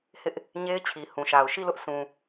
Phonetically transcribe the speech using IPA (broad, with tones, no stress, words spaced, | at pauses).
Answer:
hɪ˦ʔ | ɲe˦ɪ̯t͡ɕʰi˨ hũ˨ʃa˨ʊ̯ ʃi˦˨lʊ˦ʔsũ˨